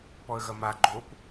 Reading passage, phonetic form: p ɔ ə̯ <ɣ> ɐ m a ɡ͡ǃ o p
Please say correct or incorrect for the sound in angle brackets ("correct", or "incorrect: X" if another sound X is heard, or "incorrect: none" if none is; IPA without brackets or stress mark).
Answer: correct